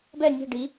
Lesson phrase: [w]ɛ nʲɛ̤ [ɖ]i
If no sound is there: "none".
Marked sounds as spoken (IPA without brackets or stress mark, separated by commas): b, ɖ